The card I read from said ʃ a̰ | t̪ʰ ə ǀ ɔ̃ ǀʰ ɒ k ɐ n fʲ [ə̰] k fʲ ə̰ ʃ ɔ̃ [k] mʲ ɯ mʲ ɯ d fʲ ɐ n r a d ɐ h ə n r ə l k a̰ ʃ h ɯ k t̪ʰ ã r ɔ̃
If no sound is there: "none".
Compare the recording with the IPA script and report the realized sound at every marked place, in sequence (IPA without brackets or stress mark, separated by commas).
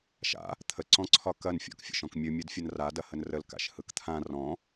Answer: ɔ̰, k